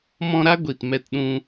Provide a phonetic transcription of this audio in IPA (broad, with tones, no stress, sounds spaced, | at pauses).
m ɔ̃˧ ɾ a˦ ɡʷ i˨ t m ɛ˧ t ɗ ũ˧